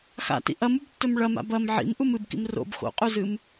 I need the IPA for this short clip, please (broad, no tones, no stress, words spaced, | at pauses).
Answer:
xa̰tḭ ʔɐmubtːɵm ɭɐma̰ bɐm ʕḭmʔum ɨbkḭm ro̰b xo̰qʼuzɨm